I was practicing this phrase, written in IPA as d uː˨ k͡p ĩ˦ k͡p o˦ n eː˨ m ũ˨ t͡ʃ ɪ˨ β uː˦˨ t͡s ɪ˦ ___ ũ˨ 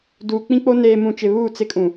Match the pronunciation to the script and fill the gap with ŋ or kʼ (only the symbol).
kʼ